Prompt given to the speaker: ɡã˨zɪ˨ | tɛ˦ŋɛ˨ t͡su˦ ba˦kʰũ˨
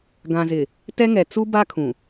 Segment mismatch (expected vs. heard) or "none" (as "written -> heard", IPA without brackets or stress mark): none